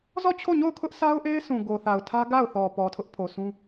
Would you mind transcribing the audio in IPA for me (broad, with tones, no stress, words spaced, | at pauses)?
zɔ˦˨t͡ɕʰo˦˨ɲo˦˨ʊ̯ kʰʊ˦ʔsʰa˦ʊ̯ ʔe˦ɪ̯sʰũ˨ ɡo˨θa˨ʊ̯tʰä˦ ɡa˦˨ʊ̯θɔ˨ pɔ˨tʰʊ˦ʔpʰo˨sʰũ˦